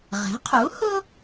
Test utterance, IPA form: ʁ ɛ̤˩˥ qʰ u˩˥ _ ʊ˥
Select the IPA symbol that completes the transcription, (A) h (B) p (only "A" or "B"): A